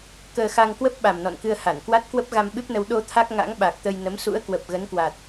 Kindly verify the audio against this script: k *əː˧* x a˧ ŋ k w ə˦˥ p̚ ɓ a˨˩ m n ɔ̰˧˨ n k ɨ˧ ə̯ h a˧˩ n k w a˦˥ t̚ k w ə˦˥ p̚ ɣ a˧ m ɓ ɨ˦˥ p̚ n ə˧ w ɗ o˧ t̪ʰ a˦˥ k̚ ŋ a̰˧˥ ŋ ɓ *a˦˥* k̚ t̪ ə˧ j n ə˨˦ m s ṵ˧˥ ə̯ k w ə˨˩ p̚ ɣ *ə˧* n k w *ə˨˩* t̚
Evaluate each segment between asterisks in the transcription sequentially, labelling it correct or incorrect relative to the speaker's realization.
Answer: correct, incorrect: a˨˩, incorrect: ə˨˦, incorrect: a˨˩

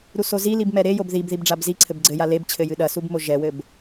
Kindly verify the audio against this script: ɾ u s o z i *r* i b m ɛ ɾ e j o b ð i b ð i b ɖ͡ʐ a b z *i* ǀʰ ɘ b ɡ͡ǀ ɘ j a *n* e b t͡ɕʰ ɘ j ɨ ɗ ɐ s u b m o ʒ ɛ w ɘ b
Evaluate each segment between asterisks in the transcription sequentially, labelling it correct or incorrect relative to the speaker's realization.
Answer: incorrect: l, correct, incorrect: l

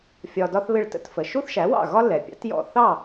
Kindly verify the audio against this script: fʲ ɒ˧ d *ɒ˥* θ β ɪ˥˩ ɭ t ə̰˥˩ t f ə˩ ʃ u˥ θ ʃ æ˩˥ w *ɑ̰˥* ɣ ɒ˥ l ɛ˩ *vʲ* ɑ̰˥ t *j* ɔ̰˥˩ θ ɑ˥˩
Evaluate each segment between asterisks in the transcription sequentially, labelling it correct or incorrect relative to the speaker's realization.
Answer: correct, incorrect: ɑ̰˥˩, incorrect: pʲ, correct

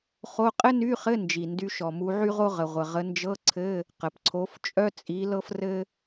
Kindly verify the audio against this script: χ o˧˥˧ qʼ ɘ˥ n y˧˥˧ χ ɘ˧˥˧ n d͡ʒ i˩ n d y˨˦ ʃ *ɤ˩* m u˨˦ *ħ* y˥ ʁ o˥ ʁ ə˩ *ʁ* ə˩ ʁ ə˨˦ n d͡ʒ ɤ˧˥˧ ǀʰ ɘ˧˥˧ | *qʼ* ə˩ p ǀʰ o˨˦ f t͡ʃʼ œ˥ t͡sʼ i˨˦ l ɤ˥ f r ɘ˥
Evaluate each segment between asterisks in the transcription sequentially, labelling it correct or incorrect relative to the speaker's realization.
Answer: incorrect: ɔ˩, incorrect: ʕ, incorrect: ʁʷ, incorrect: q

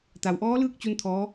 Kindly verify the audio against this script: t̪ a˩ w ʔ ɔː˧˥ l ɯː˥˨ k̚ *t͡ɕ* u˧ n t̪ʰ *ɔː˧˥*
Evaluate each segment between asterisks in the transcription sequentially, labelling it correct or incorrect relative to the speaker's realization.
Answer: correct, correct

